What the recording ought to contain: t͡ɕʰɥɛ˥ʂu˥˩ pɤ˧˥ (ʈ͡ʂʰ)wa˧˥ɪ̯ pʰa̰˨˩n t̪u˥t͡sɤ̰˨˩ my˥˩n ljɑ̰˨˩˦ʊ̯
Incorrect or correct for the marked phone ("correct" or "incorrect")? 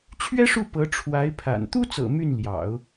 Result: correct